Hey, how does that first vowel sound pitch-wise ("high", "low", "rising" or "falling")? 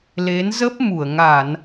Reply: rising